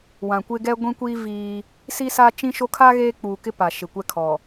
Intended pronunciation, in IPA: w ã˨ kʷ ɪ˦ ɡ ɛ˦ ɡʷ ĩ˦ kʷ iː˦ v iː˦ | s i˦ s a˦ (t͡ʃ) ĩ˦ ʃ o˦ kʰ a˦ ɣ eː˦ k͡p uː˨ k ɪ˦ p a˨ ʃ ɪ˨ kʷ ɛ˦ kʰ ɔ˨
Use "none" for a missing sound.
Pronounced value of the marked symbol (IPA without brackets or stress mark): t͡ʃ